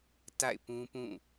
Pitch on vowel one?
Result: falling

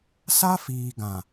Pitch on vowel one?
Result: high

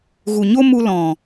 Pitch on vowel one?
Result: low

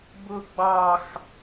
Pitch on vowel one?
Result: high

